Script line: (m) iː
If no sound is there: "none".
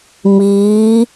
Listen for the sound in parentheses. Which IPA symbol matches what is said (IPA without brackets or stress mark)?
m